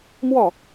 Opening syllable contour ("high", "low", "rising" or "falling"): falling